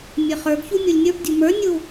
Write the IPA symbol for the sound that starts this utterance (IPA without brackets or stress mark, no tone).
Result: mʲ